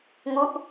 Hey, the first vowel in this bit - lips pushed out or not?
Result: yes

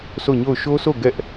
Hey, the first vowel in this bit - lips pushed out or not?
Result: yes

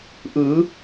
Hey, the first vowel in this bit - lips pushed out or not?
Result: no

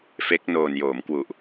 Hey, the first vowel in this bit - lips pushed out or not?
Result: no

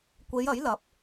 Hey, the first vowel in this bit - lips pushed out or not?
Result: no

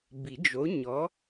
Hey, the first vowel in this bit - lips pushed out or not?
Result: no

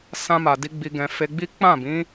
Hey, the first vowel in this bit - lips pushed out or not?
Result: no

